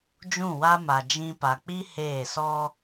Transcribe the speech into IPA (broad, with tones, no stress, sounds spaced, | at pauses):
d͡ʒ ũ˦˨ w a˦ m a˨ d͡ʒ ĩ˦ p a˨ k͡p i˦ h eː˦˨ s ɔ˦